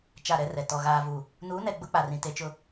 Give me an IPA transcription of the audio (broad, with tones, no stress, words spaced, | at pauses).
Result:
t͡ʃa˦˨ɾɛ˦rɛ˨ tɔ˨ ɣaː˨vu˨ | nuː˨˦nɛ˨ ɡ͡bʊ˦k͡pa˨rĩ˨ te˨t͡ʃʊ˨